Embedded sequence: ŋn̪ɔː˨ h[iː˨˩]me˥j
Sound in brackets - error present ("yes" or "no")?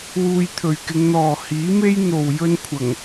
yes